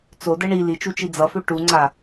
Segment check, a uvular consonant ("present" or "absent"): absent